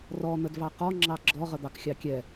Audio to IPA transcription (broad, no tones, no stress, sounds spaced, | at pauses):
r ɔ n̪ ə d v ɑ q ɔ ŋ͡ǁ ɑ ɡ͡ǁ ɔ ʁ ə d̪ ɑ k xʲ ɑ kʲ ɛ